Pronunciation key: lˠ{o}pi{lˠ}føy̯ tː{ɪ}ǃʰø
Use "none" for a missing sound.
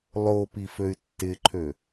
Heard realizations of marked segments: o, none, ɪ

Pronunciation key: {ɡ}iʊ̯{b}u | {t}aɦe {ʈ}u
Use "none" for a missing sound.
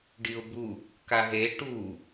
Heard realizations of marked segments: ɖ, b, k, ʈ

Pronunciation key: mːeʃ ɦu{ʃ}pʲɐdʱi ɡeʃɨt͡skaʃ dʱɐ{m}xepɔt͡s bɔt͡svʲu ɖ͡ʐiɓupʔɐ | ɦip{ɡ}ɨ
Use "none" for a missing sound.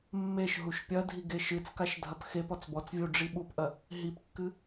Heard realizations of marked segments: ʃ, p, kː

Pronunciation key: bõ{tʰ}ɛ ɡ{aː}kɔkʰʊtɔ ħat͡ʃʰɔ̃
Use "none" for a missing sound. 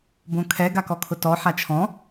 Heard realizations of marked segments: kʰ, a

